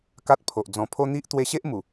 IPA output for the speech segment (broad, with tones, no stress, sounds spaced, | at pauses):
k a˦ t̚ pʰ o˨ ʔ d͡z ɔ̃˨˩ pʰ o˧ n̪ i˦ ʔ t̪ w e˧ ɕ e˦ ʔ m u˨˩